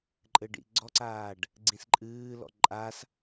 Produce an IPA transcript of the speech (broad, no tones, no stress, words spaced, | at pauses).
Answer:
ǃʼɘɖḭɡ͡ǀɔǀaːɖ | ɡ͡ǀĩsǃʼɨːlɔ̰ ǃʼas